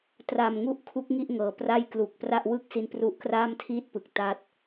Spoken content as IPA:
t r a˨˩ m ŋ u˥˩ ʔ kʰ u˦˥ k̚ ŋ i˥˩ ʔ ŋ ɤː˩˦ p r a˥˩ j k l u˨˩ k̚ p r a˥˩ ʔ w ɯ˥˩ k̚ s i˧ n p r u˦˥ ʔ k r aː˥˩ m tʰ iː˥˩ t̚ p ɯ˨˩ k̚ t a˥˩ t̚

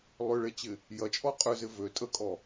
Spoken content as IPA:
lˠ ʏ ɭ e t͡ɕ ɪ | j ɐ t͡ʃʼ ɔ qʼ ʏ z ɪ v ø tʼ ə kʼ ɔ

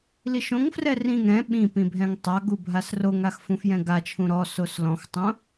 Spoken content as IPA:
l i ʃ õ ŋ f r ɛ r ĩ ŋ ɾ ɛ̃ ɓ ĩ p ĩ bʱ ɛ̃ ŋ tˤ a ɡ u bʱ a s r o ŋ a x f ũ f j ɛ̃ ɡ a t͡ʃʰ ũ ɾ ɔ s o s l ɔ̃ x tˤ õ

